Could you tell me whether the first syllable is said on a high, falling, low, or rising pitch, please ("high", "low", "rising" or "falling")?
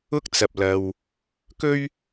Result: high